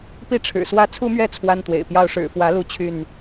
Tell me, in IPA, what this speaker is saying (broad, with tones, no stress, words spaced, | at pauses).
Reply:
pi˥˨ʈ͡ʂʰɻ̩˨˩swä˦ t͡sʰu˦mɥɛ˥˨ t͡sʰwa˦nt̪wḛ˨˩ɪ̯pjɑ˦ʊ̯ ʂɻ̩˨˩fwä˨˦lu˨˦ t͡ɕʰy˥˨n